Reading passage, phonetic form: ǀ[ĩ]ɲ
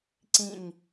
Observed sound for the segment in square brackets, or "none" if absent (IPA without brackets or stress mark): ĩ